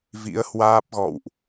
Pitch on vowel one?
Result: rising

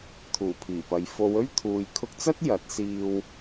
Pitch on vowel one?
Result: low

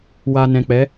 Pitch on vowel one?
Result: low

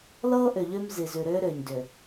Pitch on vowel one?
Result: high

